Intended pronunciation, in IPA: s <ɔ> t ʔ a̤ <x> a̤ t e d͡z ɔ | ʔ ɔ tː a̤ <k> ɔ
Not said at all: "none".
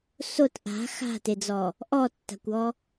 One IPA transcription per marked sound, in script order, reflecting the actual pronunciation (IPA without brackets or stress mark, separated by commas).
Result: o, x, kʷ